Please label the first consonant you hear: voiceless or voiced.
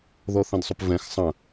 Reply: voiced